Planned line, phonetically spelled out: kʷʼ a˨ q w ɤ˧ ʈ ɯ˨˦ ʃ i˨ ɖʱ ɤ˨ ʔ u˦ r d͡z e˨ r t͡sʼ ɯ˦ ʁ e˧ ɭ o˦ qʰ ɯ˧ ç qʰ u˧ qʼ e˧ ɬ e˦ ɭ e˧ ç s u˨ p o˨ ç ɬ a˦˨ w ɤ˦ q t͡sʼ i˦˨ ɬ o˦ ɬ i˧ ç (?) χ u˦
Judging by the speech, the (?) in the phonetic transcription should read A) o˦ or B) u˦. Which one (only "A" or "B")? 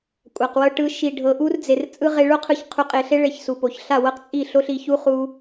B